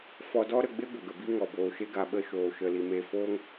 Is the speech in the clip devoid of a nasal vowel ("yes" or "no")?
yes